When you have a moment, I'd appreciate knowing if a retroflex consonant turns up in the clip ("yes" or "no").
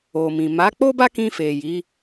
no